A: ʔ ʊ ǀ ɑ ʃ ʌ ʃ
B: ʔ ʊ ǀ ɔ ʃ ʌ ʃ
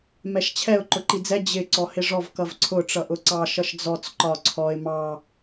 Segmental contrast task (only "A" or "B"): A